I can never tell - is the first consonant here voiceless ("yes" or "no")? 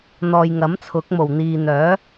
no